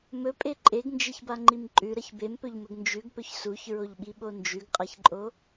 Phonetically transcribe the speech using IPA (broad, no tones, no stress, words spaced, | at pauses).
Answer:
mɵpʼe ǃʼeɡnd͡ʒeçbaŋ͡ǃim ǃʼʉɾɐç bempɵʎmɵɡ nd͡ʒʉɡpɵç suçɹoʎɓiɓo nd͡ʒʉɡqʼaçǃʼo